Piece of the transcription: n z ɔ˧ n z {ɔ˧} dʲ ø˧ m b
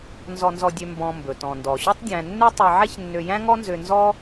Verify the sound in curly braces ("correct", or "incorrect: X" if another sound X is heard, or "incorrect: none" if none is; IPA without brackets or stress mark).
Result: correct